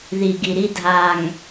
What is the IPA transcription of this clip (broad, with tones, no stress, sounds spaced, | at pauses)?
ð i˨ ɡ i˨ ɾ i˦ dʱ a˨ ŋ